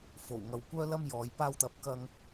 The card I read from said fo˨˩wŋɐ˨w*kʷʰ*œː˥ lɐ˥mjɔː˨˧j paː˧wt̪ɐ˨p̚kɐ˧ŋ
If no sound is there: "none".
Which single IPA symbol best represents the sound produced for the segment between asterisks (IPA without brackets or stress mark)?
kʷ